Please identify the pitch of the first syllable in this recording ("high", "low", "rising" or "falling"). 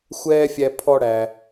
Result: high